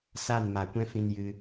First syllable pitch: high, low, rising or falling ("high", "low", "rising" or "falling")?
falling